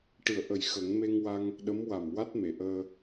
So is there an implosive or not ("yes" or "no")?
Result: yes